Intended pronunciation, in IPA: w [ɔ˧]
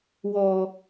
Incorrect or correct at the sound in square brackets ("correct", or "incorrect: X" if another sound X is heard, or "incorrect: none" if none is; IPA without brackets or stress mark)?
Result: correct